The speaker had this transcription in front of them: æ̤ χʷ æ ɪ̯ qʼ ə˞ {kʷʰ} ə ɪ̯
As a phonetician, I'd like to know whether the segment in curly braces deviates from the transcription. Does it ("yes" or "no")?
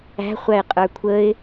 no